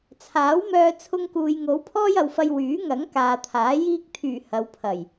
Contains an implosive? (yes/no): no